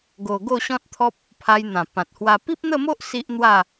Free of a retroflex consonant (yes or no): yes